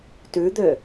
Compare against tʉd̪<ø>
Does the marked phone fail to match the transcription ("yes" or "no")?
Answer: no